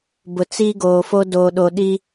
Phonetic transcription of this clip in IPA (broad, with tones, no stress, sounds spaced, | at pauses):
b ʊ˨ t͡s i˦ ɡ oː˨ f o˦ d oː˨ ɗ o˨ ɗ i˦